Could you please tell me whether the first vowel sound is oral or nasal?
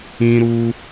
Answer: nasal